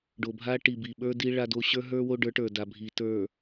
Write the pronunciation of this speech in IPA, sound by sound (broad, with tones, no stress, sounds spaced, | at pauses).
ɖ o˨ bʱ a˦ ʈ i˨ b i˨ ɓ ə˞˦ d i˦ ɭ a˦ d o˦ ɕ ə˞˦ ɦ ə˞˦ w o˦ ɖ ə˞˨˦ ʈ ə˞˨ d a˨ bʱ i˨ t ə˞˨